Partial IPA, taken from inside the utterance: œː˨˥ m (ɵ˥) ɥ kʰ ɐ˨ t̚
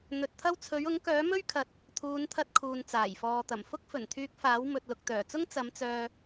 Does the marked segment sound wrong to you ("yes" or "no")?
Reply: no